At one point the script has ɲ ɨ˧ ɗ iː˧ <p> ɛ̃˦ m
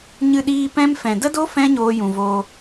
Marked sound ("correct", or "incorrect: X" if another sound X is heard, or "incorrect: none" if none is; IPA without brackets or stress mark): correct